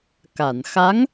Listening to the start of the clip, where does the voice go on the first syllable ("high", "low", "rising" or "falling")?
low